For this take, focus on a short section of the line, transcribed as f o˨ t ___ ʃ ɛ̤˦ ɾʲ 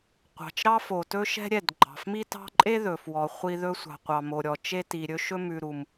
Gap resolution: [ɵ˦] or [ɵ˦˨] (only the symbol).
ɵ˦